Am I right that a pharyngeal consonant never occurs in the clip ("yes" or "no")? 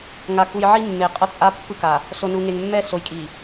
no